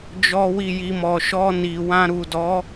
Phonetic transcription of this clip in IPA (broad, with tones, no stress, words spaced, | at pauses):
d͡ʒɔ˦wi˦˨ji˧ mɔ˨ʃɔ˧ni˨ wã˧ ɾu˨dɔ˨˦